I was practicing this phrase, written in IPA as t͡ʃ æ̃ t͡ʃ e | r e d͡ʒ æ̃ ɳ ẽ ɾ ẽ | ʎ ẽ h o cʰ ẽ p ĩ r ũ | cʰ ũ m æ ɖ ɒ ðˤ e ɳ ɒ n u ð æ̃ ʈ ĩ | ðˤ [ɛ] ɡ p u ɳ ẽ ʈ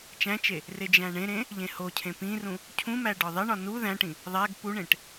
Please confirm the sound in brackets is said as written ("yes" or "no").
no